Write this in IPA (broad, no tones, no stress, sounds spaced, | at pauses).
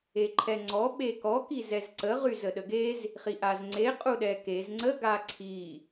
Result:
e ǃʰ ɛ ŋ͡ǀ ɔ ɓ e k ɔ k i z ɛ z ǀ ə ʁ y z ə ɗ ə ɡ e z | χ i ʔ a z ŋ͡ǀ e qʼ u ɗ ɛ k e z ŋ͡ǀ ə ɡ a ǀʰ i